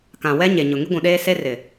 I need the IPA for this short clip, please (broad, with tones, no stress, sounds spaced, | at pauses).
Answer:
k ã˨ w ɛ˦ ɲ e˨ ɲ ʊ˨ ŋ i˦ ɡʷ ũ˨ ɗ eː˦ s e˦ r ɪ˨